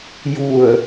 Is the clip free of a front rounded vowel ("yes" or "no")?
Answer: yes